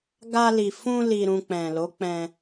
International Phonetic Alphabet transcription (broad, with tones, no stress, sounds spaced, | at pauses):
ɡ a˧ l i˨ f ũ˧ l i˨ ɾ ũ˨ k͡p ɛ̃˨ l o˨˦ k͡p ɛ̃˧